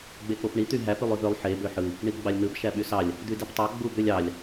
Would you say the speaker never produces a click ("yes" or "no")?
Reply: yes